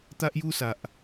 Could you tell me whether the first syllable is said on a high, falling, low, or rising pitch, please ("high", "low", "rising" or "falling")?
high